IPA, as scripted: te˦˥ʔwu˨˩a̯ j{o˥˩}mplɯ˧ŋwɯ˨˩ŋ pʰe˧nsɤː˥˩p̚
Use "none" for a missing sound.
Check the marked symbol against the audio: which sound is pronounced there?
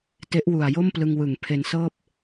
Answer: o˥˩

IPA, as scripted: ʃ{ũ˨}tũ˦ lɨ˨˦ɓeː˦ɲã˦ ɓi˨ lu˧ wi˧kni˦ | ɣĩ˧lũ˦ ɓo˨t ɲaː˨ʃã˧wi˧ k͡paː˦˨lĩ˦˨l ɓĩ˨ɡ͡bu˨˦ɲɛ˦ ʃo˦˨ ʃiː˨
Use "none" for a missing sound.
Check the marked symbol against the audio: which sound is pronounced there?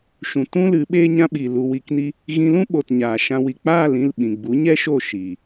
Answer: ũ˨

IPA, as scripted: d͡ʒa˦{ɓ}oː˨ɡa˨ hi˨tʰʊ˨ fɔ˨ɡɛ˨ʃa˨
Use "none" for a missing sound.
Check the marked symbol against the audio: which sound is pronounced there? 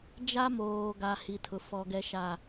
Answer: m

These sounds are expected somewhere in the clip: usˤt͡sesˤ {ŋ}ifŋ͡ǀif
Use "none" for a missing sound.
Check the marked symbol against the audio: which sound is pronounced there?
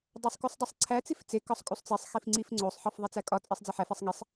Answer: x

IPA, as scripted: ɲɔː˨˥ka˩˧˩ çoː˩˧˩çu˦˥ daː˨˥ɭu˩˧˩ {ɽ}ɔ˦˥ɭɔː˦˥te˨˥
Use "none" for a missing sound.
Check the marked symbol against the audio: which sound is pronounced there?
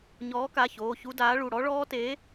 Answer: ɽ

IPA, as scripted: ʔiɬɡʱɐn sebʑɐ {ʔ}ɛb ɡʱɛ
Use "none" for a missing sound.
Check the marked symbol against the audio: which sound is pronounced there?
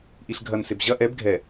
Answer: ʔ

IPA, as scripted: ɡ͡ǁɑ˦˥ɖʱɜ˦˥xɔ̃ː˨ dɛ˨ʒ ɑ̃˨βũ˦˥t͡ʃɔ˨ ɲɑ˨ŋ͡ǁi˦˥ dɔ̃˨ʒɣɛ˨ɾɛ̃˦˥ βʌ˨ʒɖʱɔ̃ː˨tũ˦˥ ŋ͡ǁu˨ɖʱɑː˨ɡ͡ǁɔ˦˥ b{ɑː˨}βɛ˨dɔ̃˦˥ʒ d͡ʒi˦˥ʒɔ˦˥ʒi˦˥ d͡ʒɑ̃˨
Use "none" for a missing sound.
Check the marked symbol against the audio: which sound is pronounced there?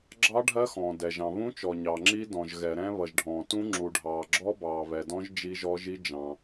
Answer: ɑː˨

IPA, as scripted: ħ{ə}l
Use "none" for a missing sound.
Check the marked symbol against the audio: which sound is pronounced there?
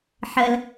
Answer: ə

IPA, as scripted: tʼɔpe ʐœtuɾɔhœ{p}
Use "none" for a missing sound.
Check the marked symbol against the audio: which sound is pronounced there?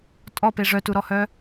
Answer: none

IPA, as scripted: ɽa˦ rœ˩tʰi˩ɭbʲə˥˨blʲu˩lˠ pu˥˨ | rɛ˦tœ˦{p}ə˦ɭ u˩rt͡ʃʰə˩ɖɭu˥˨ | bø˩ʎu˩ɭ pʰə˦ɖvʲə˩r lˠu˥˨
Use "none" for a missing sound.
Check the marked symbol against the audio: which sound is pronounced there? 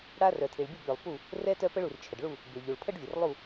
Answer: p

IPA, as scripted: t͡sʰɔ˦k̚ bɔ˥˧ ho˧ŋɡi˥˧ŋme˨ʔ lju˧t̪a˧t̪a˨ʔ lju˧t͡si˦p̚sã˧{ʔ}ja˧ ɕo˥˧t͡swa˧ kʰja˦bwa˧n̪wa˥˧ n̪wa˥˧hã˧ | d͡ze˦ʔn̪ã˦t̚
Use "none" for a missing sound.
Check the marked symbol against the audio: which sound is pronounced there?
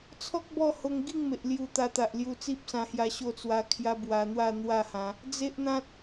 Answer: h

